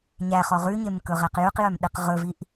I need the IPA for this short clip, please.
ɲæχɔ ʁʉɲemkɵʁæq jʉqjœmɗeq ʁɵviʔ

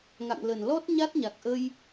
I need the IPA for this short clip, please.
ŋa̰˧˨ŋlə˧˩n lɔ˦˥t̚ɲa˦˥t̚ɲa˨˩k̚ʔə˧j

